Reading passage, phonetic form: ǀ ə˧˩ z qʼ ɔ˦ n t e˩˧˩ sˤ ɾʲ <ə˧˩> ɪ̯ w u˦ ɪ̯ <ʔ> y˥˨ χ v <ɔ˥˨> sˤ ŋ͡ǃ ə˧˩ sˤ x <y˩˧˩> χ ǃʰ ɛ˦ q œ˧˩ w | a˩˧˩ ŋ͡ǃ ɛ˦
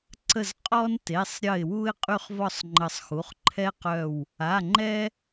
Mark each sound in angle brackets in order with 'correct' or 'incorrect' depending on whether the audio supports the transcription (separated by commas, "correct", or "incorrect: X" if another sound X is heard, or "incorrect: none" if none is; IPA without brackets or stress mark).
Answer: correct, incorrect: qʼ, correct, incorrect: u˩˧˩